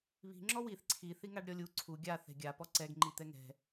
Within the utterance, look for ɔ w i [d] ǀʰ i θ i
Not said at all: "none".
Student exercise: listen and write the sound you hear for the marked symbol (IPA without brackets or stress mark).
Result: θ